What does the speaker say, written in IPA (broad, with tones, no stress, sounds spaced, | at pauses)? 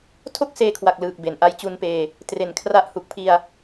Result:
tʰ o˥˩ k̚ s eː˧ kʰ w a˨˩ k̚ l ɯː˨˩ k̚ b e˩˦ n ʔ a˧ j t͡ɕ u˧ n p eː˧ | t r e˩˦ n kʰ r a˦˥ ʔ h u˨˩ k̚ pʰ i˧ a̯